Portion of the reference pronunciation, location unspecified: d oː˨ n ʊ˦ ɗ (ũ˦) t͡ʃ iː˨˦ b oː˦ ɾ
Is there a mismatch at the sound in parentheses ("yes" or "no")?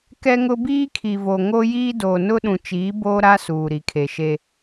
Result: yes